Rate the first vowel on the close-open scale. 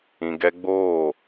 close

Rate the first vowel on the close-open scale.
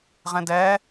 mid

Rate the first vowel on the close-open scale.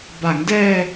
open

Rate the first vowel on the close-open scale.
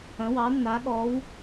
open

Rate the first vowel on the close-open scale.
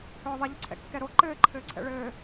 mid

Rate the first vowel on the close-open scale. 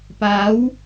open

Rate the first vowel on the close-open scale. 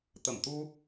mid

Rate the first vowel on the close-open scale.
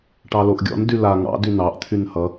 open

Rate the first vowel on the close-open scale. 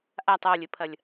open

